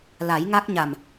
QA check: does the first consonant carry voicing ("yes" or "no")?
yes